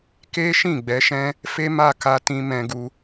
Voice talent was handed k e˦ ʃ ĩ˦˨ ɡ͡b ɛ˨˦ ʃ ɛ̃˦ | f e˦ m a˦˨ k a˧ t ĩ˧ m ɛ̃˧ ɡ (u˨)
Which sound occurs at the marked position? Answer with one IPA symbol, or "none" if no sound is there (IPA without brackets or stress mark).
u˧